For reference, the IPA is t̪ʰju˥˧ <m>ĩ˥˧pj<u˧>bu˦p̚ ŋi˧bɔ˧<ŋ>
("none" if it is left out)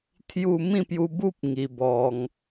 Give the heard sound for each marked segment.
m, u˧, ŋ

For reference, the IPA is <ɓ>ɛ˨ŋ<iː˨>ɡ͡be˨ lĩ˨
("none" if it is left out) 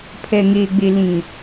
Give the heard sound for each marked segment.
pʰ, eː˨

